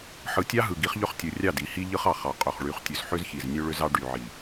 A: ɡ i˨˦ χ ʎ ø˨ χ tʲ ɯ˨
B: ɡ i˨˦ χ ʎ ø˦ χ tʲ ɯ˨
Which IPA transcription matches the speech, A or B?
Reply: B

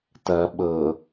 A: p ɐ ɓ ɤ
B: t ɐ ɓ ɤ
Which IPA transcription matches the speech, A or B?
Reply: B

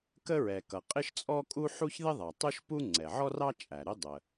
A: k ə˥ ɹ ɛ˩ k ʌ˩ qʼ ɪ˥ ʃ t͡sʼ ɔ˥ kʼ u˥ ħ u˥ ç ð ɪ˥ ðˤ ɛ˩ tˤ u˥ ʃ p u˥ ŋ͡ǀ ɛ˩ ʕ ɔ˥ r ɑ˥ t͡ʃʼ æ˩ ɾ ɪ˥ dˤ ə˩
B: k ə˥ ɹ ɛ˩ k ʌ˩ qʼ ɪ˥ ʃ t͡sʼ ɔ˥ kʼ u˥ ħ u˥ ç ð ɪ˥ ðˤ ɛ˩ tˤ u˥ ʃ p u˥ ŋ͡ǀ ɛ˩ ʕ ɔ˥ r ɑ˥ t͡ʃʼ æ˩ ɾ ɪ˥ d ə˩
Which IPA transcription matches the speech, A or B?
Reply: A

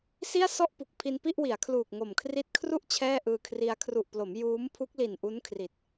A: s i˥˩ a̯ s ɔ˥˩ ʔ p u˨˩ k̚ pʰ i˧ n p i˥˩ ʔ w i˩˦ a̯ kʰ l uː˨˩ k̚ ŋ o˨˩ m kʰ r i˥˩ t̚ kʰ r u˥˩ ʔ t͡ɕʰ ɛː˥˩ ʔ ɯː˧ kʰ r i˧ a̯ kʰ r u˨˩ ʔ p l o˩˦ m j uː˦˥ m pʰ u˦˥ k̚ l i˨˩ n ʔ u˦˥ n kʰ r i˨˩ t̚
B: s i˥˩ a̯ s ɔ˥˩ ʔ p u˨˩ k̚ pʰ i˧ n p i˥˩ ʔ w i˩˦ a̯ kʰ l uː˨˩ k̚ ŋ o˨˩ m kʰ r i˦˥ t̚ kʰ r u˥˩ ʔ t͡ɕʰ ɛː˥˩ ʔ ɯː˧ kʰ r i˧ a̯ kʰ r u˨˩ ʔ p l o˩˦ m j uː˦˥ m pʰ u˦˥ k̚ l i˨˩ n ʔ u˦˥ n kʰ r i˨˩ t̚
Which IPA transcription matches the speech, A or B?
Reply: B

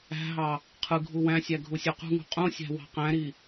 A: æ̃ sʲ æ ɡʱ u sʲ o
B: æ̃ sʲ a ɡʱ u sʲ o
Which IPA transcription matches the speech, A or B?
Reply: A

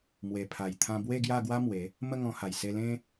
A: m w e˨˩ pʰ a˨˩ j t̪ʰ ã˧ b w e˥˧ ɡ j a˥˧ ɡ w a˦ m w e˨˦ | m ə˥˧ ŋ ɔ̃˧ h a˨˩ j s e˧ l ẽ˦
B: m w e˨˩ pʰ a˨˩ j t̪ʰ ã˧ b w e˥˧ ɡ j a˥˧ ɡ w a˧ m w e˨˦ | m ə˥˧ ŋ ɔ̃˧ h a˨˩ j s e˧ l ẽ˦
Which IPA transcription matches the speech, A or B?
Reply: A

